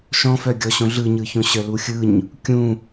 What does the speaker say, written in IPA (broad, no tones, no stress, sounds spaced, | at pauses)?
ʃ ɔ̃ f œ ɡʲ ɔ ɕ õ ɮ ɯ ɲ ɯ ç õ ɕ œ l u xʲ ɯ ɲ | kʲ ũ